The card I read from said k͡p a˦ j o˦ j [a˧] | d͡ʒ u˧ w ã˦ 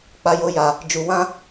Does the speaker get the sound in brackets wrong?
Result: no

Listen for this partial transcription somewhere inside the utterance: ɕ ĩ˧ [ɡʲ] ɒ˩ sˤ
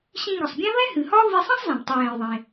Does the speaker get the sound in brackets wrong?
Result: yes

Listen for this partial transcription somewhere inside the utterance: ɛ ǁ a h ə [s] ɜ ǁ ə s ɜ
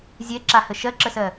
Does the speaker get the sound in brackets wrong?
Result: yes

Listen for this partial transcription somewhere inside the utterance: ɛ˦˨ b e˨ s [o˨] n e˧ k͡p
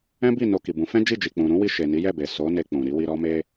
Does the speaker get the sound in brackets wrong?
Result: yes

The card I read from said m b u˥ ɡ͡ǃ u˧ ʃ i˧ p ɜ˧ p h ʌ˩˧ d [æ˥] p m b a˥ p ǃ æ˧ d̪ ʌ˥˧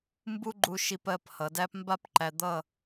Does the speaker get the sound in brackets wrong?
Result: no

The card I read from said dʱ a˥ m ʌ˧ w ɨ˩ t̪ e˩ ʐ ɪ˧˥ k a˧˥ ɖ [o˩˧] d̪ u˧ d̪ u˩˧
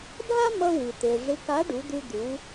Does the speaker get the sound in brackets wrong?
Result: yes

